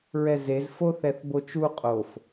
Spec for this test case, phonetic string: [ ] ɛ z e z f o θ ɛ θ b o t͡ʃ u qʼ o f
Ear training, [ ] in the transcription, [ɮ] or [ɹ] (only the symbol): ɹ